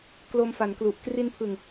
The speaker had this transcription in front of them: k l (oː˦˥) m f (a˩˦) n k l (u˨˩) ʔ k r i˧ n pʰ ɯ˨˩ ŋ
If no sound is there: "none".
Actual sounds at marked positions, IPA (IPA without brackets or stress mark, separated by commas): o˦˥, a˩˦, u˨˩